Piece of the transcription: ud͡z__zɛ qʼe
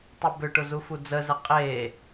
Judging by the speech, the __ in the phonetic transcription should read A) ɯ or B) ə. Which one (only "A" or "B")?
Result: B